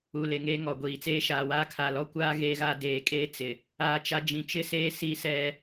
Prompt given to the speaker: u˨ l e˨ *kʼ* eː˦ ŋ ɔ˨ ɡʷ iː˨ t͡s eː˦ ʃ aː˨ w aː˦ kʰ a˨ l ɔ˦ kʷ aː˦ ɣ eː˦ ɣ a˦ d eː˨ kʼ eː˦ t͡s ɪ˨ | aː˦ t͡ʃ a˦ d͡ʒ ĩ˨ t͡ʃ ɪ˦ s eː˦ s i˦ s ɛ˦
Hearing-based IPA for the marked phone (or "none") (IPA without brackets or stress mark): ŋ